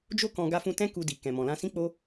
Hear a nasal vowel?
yes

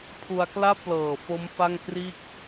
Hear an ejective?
no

